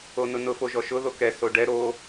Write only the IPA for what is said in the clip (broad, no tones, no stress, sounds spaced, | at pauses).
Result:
o n ʊ n ʊ f o ʒ ɔ ʃ ʊ ð o k ɛ s o ɖ ɛ ɾ o